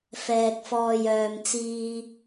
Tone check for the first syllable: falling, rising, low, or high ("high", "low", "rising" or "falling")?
low